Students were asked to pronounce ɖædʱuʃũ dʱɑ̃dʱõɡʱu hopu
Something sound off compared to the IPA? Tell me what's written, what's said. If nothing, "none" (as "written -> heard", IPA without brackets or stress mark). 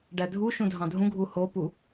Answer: õ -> ũ